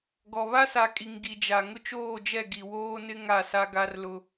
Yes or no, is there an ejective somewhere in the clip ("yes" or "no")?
yes